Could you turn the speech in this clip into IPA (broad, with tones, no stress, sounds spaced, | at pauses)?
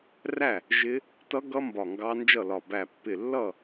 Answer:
r æ˥˨ | ʒ ɪ˦˥ | t ʌ˦˥ ɡ ʌ˦˥ m b ɒ˧˩ ŋ ɡ ɑ˦˥ n d͡ʒ ʌ˥˨ l ɒ˧˩ b æ˧˩ pː ɪ˧˩ lː ʌ˥˨